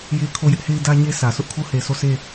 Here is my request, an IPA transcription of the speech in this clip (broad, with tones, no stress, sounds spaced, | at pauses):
j e˦ kʰ o˦˨ j ɪ˦ ʔ h e˦ ɪ̯ d ä˦ ɲ e˦ sʰ ä˨ s ʊ˦ ʔ kʰ o˦ h e˨ sʰ o˦˨ s e˦˨